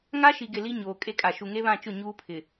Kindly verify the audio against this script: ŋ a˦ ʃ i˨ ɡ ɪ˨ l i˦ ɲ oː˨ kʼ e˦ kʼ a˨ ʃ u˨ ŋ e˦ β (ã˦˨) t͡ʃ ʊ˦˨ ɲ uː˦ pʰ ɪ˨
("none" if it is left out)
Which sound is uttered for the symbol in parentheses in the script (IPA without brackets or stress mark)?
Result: ã˦˨